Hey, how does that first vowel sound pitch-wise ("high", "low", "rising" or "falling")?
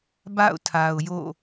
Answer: falling